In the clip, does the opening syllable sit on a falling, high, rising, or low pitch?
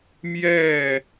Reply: falling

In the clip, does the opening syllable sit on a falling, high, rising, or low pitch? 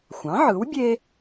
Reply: rising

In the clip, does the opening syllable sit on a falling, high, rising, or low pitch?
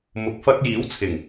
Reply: low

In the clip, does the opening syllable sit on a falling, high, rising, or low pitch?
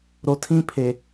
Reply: low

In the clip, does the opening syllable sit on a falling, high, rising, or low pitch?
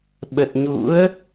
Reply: low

